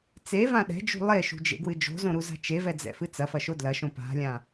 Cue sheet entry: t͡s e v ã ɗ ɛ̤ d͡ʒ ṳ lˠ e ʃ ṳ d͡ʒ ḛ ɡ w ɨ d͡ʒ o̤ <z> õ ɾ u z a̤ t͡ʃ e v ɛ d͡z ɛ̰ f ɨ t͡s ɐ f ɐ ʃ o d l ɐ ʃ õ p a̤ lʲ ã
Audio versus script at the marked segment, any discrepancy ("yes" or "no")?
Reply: no